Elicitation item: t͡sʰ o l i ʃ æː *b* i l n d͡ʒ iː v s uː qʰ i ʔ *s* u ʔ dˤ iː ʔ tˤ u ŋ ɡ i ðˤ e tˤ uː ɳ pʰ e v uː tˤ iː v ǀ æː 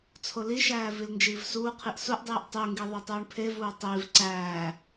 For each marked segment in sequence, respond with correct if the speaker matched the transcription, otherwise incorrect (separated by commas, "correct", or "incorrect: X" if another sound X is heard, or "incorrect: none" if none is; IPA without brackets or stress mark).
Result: incorrect: v, correct